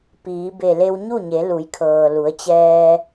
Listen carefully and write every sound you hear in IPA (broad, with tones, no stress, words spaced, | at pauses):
piː˩˧be˧˩ le˧wɲu˥˨ɲe˩˧ lu˩˧jkʰɤː˩lu˩˧ə̯t͡ɕɛː˧